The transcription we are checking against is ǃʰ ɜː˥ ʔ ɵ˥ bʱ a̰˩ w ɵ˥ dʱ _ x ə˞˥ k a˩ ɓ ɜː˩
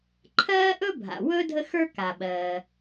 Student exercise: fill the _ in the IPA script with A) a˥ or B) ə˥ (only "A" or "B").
B